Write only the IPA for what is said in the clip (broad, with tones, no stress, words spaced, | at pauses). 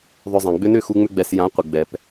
ðˤʏ˧zˤɛ̃˨ɡ͡bʏ˦ nʏ˦˨xu˧ŋ͡mʏ˧ɡ͡bɛ˨s jã˨˦ qʷɪ˨ɡ͡bɛ˨p